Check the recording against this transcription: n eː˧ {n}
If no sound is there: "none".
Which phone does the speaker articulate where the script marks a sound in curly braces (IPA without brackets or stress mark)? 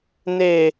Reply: none